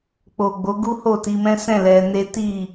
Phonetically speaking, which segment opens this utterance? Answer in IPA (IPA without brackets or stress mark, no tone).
k͡p